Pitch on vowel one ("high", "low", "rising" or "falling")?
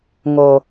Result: low